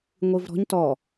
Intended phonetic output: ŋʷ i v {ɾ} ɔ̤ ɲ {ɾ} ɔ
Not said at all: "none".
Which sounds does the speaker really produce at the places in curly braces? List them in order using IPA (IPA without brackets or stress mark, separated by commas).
ɾ, t